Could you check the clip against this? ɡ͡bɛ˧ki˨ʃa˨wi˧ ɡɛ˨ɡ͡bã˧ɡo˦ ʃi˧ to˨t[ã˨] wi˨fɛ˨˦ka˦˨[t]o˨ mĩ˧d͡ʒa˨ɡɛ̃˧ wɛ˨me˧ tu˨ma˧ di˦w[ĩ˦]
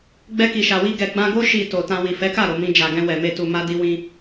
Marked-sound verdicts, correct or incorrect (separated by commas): incorrect, incorrect, correct